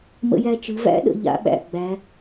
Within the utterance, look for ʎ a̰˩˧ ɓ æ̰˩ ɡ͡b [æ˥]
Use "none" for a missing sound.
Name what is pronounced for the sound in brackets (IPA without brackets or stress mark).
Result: æ˩˧